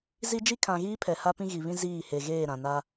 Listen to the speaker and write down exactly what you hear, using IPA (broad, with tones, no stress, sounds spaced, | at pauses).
z i˦ d͡ʒ i˦ kʰ ã˨ ɣ iː˦ pʰ ɛ˨ h a˦ p ĩ˦ ɣ i˨ β ĩ˦ z iː˦˨ h e˨ ɣ eː˦˨ ɾ ã˨ n a˦